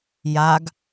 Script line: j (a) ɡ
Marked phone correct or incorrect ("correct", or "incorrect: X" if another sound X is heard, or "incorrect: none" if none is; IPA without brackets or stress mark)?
correct